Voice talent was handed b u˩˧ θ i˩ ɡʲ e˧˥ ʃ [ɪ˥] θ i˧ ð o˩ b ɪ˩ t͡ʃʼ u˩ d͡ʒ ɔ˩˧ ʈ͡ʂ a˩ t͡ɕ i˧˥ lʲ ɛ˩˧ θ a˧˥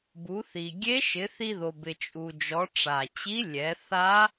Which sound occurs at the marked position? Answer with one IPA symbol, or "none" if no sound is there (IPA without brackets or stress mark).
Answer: ɪ˩˧